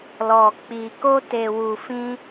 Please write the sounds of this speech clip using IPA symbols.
lɔ˨k͡pi˨ ko˧te˨wu˨fĩ˧

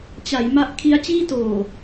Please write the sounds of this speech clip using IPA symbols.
t͡ɕa˩˦j ma˦˥ʔ kʰi˦˥a̯t͡ɕiː˥˩toː˨˩

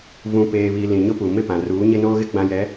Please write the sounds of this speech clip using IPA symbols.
vũ˨peː˨βi˨ lĩ˨ɲʊ˦pu˨ mɪ˦˨pã˨ ruː˨˦ɲɪ˦noː˦ɣɪ˦ ɡ͡bã˦jɛ˨˦

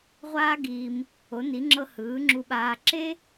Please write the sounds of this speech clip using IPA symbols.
ʁʷaː˥ɡiː˧m | o˩˧ni˩˧ŋ͡ǁɤ˧ hɯː˩˧ŋ͡ǁu˧ɓaː˧ ǁe˥

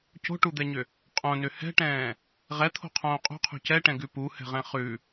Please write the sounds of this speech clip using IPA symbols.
co̤ʈud̪ɛɲʏ | qʼõnʏ hɛ̤ʈɛ̃ː | ʁɛt̪ʰo̤qʰõː qʼṳqʰṳ cɛʈɛ̃ɡʉ puhɛ̤ʁɛ̃ χʉ

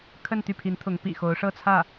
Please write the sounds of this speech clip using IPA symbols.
kʰə˥˧nt̪y˥˩pʰi˧˥nt̪ʰʊ˧˥ŋ pḭ˨˩xo˧˥ʊ̯ ʂɤ˥˧t͡sʰä˥˩

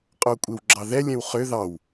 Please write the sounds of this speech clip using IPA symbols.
qʼokʷʼewɡ͡ǁɑðɛ lʲɛ̃wχʏ ðɑw

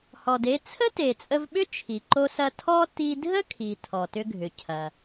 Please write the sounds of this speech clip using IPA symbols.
hɔ˩de˧ t͡sʰə˥te˩t͡sʼə˧vɓʏ˥ t͡ʃʰi˩ǃo˧sɐ˧ tʰɔ˥ ti˧dʱə˥kʰi˩ tʰɔ˩tʏ˧ɡʱʏ˩cʰɐ˩

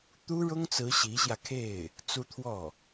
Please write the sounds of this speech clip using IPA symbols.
t̪u˥ɻʊ˥ŋt͡sɹ̩˧˥ ɕi˧˥ɕjä˧kʰe˥˩ɪ̯ | t͡su˥t̪ʰwɔ˥˩

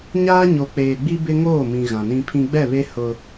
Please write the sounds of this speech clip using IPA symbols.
ɲaː˦ɲo˨k͡peː˨ɡ͡bi˦ bɪ˦ŋoː˦˨mĩ˨ ɣã˨nĩ˦pʰĩ˦ ɡ͡bɛ˦˨βe˦ hʊ˦

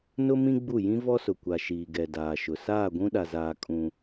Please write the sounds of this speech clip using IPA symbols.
nʊ˦mĩ˦ ɡ͡bu˦˨ jĩ˦vɔ˦sʊ˨ kʷa˨ ʃiː˨ɡɛ˨ daː˨ʃʊ˨ saː˦˨ɡʷũ˦ɗa˨zaː˨ kʼũ˦

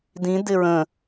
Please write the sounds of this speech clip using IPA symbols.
dĩ dɪɹə̃

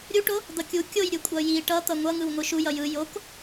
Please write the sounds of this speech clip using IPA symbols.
ɾʲuʈo | d̪ʌkʲu kʲojɾʲɯ kʷʼʌji ʈʌt̪ʌ ŋʷʌŋɯw ŋʷɯʃujʌ jɯ jok

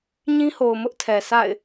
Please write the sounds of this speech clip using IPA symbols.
ɲĩ˦ho˨ʊ̯ mʊ˦ʔtʰɛ˨ sa̰˦˨ɪ̯

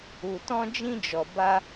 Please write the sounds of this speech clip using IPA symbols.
u˨tɔ̃˧d͡ʒĩ˧d͡ʒɔ˨ ba˧

